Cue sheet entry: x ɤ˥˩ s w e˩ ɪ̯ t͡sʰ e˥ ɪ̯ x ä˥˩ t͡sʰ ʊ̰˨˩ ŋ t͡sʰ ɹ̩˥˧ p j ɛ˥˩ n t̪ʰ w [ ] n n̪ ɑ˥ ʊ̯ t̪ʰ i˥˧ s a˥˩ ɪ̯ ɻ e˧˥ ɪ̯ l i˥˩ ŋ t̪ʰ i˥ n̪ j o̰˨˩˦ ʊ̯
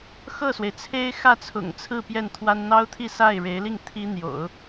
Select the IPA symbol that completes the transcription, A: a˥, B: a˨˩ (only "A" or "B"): A